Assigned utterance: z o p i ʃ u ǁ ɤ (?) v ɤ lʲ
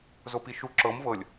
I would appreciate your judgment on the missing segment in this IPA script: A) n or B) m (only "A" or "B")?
B